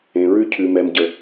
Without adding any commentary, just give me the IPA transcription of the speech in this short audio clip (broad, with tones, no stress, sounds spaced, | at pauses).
ẽ˨ ɹ ʉ˦ cʰ ʉ˨ m ɛ˨ m ɟ ə˨